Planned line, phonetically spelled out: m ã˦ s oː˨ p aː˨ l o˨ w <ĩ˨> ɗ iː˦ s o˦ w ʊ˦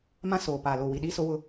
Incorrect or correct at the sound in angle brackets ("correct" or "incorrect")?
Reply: incorrect